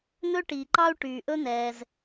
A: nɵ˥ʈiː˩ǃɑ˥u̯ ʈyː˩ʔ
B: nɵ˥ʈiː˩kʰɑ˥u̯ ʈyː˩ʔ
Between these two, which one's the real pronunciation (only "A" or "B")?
A